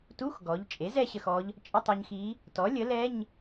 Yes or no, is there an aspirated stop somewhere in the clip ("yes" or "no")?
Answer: no